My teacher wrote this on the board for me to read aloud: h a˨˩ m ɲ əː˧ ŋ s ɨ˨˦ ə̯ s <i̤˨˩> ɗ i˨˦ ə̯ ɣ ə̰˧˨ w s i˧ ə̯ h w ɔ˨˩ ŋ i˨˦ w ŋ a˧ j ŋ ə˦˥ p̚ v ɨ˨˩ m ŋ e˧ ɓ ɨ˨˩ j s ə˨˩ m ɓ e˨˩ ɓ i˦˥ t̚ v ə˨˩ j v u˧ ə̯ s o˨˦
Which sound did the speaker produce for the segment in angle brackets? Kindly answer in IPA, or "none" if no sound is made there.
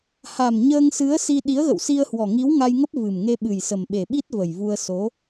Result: i˧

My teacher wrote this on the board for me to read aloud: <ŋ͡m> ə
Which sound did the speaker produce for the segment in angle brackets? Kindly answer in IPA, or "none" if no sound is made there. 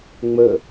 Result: ŋ͡m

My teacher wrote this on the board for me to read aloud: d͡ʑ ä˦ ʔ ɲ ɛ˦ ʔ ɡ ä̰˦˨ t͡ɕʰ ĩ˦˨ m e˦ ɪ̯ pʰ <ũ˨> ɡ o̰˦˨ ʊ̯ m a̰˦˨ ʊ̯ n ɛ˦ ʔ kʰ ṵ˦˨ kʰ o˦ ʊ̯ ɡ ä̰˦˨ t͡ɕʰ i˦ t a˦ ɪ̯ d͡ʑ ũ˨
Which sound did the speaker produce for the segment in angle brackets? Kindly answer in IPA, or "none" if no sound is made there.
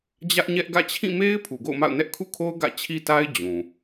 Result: u˨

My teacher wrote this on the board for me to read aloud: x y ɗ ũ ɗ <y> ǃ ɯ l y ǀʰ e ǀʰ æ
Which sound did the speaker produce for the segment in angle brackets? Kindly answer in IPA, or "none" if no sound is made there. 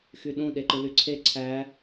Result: e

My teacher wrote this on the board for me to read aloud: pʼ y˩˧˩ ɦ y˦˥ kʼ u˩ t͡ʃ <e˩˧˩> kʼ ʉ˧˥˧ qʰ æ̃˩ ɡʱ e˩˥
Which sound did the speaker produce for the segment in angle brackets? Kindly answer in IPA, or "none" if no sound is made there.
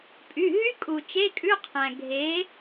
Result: e˧˥˧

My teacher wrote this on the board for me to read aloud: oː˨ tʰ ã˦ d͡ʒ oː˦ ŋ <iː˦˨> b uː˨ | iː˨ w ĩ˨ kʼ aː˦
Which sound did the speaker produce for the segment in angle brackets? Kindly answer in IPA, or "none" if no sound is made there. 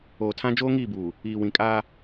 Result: iː˦˨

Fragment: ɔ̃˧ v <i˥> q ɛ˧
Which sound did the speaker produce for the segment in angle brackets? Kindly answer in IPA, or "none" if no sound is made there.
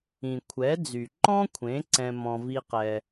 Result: i˥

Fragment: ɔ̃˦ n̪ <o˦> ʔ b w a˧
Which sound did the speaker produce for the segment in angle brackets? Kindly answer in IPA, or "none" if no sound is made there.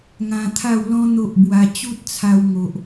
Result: o˦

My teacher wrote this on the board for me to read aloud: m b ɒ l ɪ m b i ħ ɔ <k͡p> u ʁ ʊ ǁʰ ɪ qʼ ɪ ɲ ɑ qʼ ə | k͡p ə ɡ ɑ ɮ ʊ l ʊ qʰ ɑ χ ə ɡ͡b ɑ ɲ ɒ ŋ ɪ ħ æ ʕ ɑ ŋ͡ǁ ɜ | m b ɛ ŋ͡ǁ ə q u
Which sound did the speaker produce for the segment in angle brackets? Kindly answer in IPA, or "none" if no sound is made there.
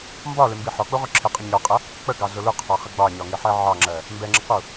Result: k͡p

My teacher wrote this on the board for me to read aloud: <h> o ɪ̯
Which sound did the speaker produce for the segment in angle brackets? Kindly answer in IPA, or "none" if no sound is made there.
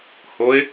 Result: h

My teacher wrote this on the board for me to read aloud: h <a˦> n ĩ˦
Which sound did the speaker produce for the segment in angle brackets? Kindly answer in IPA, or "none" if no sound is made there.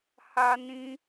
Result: a˦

